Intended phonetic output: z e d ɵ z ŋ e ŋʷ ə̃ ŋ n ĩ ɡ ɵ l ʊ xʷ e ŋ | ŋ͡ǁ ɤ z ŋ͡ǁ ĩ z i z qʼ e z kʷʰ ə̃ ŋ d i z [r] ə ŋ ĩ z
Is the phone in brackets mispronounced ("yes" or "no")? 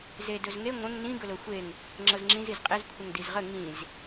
yes